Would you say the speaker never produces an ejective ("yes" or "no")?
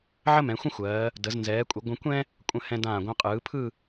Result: no